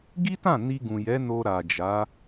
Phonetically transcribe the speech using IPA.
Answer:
ɡi˦tã˦˨ ni˧ɡũ˨jɛ˨˦ no˧ɾa˨d͡ʒa˨˦

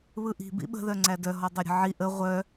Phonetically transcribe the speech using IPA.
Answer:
βɯʔi̤ bḭɓə̤ ðœŋ͡ǀædœ ɦɔdˤœɾʲə̤ʕi ʔə ʁʷœ

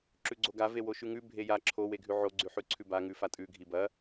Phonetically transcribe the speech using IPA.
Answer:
ǁʉɡ͡ǀoɡa vewoʃʉŋʉ bʱeja ǁʰo weɡʱʉʕo ɡ͡ǀʉħʉǀʰʉba ŋʉfatʼʉ ɡʱibɐ

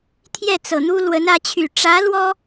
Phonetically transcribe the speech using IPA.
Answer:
t̪ʰjɛ˥˩t͡sɤ˨˩ n̪u˥ lwə˧˥nä˧˥t͡ɕʰy˨˩ ʈ͡ʂä˧˥ lwɔ˥

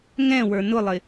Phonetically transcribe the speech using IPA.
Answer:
ŋɛ̃ wə˞nʊlˠɪ

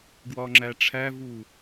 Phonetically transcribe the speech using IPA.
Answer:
ɡwɒŋ͡ǁæʈ͡ʂʰævu

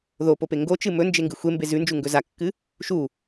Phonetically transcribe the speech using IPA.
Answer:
ðopope ŋɡot͡ʃɨ mɵnd͡ʒeŋɡɨ xʷembe zʉnd͡ʒuŋɡɵ zakːɨ | ʃu

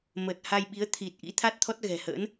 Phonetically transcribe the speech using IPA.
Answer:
məː˨˩t̚ha˧jɓi˨˦ə̯ t̪ʰi˨˩t̚ʔḭ˧˥t̪ʰa˦˥t̚ t̪ʰɔ˦˥t̚ɣɛ̤˨˩hə̰ː˧˥n

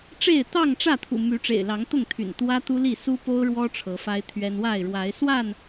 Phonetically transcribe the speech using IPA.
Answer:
ʈ͡ʂe˥˨ɪ̯ t̪ɑ˥˨ŋʈ͡ʂä˥˨t̪ʰṵ˨˩ my˨˦ʈ͡ʂḛ˨˩ɪ̯lɑ˨˦ŋt̪ʊ˥˨ŋ t̪ʰy̰˨˩nt̪wä˦ t̪u˦li˥˨ su˦po˦ʊ̯ɻwɔ˦ ʈ͡ʂʰɤ˨˦fa˦ɪ̯t̪ʰɥɛ˦n wa˥˨ɪ̯ɻwa˨˦ɪ̯ swa˥˨n

